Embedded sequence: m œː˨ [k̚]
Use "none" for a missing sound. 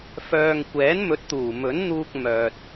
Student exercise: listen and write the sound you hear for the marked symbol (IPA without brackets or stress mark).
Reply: t̚